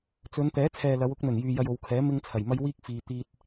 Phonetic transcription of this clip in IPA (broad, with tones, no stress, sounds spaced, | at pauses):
t͡s ɵ˨˧ n t̪ ɛː˨˥ t͡sʰ ɛː˨ l ɐ˨˧ w ʊ˧ k̚ n̪ ɵ˨˩ n j yː˨ j ɐ˧ j o˨˧ w kʰ ɛː˨˥ m ɪ˥ ŋ t͡sʰ ɐ˨˩ j m ɐ˥ j w iː˥ k̚ f iː˨ t̪ iː˥ t̚